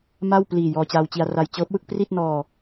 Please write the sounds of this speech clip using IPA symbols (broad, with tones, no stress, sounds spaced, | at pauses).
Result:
m a˥˩ w p l iː˨˩ j ɔː˧ t͡ɕ aː˧ w t͡ɕ i˧ a̯ r a˧ j t͡ɕ ɤː˦˥ p̚ w ɯ˥˩ k̚ p r i˥˩ t̚ n ɔː˧